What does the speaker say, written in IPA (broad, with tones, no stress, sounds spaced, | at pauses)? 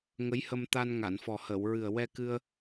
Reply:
ŋ ə˧˥ j h ə˧ m t̪ a˧ n ŋ a˨˩˨ n f ɔ˨˩ h əː˨˩˨ w ɹ ɨ˨˩ ə̯ w ɛ˧ k ɨ˧ ə̯